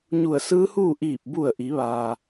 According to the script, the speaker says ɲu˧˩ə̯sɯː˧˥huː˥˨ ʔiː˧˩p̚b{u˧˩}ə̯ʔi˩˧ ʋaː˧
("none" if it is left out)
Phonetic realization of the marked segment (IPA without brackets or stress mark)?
u˧˩